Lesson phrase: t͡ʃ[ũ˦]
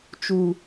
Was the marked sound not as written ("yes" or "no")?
yes